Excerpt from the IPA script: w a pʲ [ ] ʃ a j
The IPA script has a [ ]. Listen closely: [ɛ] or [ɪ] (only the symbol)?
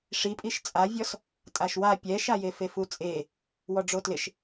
ɛ